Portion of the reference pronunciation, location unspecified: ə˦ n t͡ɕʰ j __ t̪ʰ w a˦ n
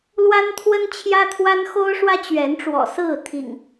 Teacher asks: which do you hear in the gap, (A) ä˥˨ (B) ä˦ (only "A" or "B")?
B